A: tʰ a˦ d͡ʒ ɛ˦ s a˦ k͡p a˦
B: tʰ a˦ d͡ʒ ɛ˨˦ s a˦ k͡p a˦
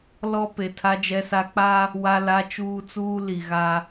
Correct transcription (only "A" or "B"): A